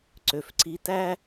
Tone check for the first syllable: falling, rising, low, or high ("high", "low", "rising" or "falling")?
low